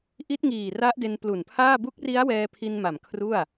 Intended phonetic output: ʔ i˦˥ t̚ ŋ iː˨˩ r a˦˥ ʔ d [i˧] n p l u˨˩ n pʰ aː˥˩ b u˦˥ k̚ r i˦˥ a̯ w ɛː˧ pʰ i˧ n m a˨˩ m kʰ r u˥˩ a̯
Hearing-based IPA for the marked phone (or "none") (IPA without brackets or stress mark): e˧